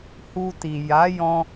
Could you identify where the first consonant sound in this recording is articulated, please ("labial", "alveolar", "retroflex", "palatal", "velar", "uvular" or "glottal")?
glottal